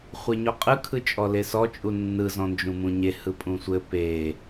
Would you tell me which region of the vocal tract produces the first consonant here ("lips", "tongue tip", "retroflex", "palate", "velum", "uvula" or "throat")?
uvula